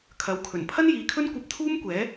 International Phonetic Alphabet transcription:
kʰ ɐ˨˥ w kʰ ɵ˨˩ n pʰ ɐ˥ n j iː˨˥ kʰ ɵ˥ n kʷ ɐ˧ p̚ t̪ʰ uː˥ m kʷ ɛː˨˥

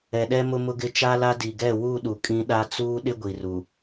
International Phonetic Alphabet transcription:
ɛ˨ ɗ ɛ˦ m ʊ˦ m ʊ˦ ɡ ɪ˦ t͡ʃ a˦ l a˦ d i˨ ɡ ɛ˦˨ w u˦˨ ɗ u˨ kʼ ĩ˦ ɗ a˦ t͡s uː˦ ɗ ɪ˦ ɡʷ i˨ r u˨

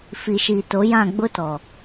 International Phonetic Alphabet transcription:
f i˨ ʃ i˨ t o˨˦ j ã˦˨ ɡ͡b ʊ˦ t ɔ˨

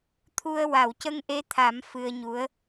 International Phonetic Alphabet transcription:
t̪ʰ u˧ ə̯ w a˨˩˨ w c ə˧ ŋ ʔ e˧˥ t̪ʰ a˨˩˦ m f ɨ˧ ə̯ ɲ u˧˥ ə̯

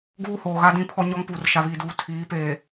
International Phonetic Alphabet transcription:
ɡ uː˦ h oː˨ ɣ a˦ d ĩ˦˨ pʰ ɔ˦ ɲ ɔ˦ ŋ p uː˨ r ʃ a˨ β iː˨ d uː˨ tʰ iː˨˦ p eː˨

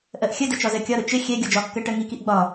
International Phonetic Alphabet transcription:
ʔ ɜ ʔ xʲ ə d ə t͡ʃ ɒ z ɜ kʲ ɒ ɾ ʊ t͡ʃ ɪ xʲ ɛ ɡʲ ɔ d͡ʒ ɒ kː ɜ ʈ ɜ ŋ i k i ʔ ɡ͡b ɒ

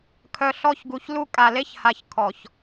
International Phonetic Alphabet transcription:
kʰ œ˨ ɬ ɔ˦˨ ç ɡ u˨ ç l u˦ kʼ a˨ l e˦ ç h a˨ ç kʰ ɔ˨ ç

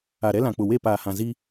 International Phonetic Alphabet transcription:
a˨ ɾ ɛ˦ l ã˨ k͡p ʊ˨ w e˦˨ p aː˨ h ã˨ z i˦

